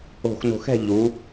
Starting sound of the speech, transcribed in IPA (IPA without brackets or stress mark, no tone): o̤